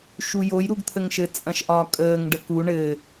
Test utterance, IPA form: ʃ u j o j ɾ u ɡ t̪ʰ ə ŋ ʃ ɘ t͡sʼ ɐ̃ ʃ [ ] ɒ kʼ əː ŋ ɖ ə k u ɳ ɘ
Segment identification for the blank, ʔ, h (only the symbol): ʔ